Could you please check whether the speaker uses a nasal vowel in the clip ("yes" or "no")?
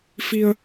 no